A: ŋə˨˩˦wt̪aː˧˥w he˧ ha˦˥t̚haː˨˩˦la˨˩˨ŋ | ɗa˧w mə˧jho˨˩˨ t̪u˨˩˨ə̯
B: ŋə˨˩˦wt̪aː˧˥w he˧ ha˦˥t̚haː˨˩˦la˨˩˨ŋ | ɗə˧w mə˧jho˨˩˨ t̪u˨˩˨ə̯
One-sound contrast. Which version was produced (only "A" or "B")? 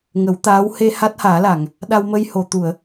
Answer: A